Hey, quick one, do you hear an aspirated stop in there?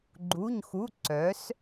no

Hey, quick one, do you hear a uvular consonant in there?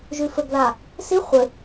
yes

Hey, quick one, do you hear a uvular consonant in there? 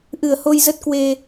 no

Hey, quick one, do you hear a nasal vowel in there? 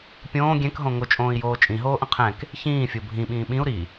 yes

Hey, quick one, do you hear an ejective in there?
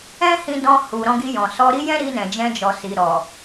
no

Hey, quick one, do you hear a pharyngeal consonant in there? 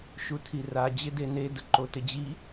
no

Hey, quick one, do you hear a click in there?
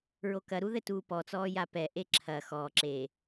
yes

